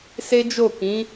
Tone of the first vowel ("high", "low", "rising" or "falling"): high